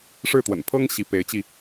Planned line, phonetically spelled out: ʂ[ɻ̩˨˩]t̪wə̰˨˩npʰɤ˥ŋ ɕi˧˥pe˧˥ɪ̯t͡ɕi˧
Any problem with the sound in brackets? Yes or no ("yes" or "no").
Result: yes